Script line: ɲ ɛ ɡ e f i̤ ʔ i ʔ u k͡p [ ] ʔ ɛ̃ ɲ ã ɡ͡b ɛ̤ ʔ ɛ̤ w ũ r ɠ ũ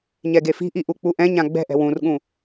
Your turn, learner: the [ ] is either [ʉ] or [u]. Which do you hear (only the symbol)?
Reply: u